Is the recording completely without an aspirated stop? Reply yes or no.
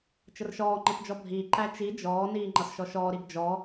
yes